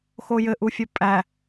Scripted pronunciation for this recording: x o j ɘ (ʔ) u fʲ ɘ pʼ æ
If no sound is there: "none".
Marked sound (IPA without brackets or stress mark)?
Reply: ʔ